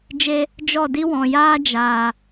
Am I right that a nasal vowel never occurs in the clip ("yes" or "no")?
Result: no